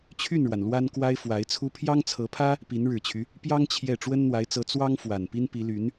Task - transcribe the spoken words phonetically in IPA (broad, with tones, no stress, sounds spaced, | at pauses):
t͡ɕʰ y˥˩ n ɻ w a˩ n l w a˥ n k w a˥ ɪ̯ f w a˧˥ ɪ̯ t͡sʰ u˥ pʰ j ɑ˥ ŋ t͡sʰ ɤ˧˥ pʰ ä˥ | p i˧˥ n ɻ ɻ̩˨˩ t͡ɕʰ y˦ | p j ɑ˥ ŋ t͡ɕʰ j ɛ˥˩ ʈ͡ʂ w ə˥ n n̪ w a˧˥ ɪ̯ t͡s ɤ˧˥ t͡s w ɑ˥ ŋ f w a˨˩ n p i˥ n p i˧˥ l y˧˥ n